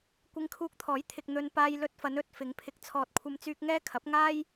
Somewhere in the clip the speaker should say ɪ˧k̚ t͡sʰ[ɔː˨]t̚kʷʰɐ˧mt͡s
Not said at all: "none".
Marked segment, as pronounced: ɔː˨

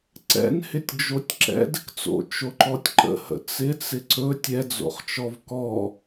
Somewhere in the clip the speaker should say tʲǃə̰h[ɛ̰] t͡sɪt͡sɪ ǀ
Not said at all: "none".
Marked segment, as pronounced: ə̰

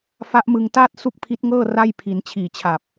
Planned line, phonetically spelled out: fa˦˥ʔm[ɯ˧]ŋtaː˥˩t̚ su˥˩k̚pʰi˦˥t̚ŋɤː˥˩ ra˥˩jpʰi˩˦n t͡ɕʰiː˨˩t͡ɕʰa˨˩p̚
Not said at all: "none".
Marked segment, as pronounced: ɯ˧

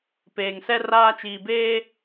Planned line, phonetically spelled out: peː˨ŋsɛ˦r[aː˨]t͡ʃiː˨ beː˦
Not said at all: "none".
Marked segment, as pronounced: aː˦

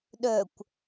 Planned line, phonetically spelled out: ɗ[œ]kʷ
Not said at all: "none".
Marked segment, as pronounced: œ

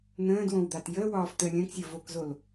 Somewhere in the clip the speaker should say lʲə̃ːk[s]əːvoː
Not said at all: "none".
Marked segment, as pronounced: sʲ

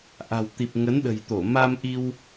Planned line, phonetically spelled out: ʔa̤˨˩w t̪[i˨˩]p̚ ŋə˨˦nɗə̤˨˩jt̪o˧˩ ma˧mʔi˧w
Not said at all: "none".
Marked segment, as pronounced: i˨˩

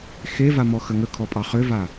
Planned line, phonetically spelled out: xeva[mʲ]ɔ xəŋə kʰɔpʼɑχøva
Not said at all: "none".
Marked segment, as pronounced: m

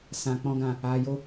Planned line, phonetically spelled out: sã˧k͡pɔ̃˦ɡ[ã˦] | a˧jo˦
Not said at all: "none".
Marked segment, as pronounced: ã˧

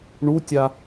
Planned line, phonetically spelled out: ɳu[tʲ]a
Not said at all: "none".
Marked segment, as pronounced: tʲ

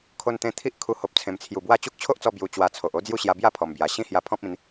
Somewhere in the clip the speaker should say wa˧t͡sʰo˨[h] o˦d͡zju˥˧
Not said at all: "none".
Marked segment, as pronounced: ʔ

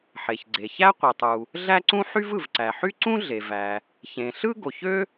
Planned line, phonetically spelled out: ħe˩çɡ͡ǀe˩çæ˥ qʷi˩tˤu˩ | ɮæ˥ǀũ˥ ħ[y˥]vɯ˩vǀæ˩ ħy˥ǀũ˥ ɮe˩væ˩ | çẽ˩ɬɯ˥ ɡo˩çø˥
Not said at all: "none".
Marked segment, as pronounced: y˥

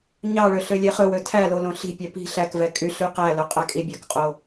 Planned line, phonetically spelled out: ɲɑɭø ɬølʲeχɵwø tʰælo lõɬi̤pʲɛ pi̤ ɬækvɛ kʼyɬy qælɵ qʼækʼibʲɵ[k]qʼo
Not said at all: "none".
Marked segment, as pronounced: k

